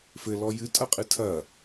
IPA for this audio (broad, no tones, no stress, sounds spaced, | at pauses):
f ɘ l ɔ j ɨ tʼ ɐ qʼ ɨ tʰ ɐ